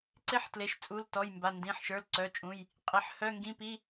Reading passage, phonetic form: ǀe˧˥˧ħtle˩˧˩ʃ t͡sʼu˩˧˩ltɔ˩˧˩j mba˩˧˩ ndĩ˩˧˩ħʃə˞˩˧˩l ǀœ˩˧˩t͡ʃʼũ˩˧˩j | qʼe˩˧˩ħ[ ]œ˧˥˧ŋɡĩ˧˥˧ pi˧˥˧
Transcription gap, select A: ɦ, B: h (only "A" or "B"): B